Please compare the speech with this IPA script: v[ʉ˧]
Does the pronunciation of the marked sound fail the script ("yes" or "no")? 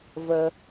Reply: yes